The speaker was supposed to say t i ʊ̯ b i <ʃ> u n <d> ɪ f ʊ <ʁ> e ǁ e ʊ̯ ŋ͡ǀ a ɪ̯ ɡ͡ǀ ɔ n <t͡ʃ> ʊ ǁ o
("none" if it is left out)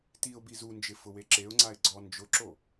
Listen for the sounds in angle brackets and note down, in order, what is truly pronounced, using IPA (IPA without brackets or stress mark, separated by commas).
z, d͡ʒ, w, d͡ʒ